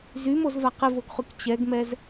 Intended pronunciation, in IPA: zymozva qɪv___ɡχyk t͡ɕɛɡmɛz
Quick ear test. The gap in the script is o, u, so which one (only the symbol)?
o